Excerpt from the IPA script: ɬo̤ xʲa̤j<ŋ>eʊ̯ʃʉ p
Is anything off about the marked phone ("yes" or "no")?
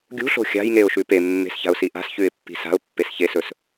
no